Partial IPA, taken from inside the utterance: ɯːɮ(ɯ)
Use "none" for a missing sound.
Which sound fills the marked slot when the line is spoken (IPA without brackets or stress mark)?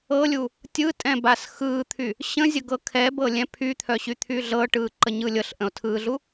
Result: u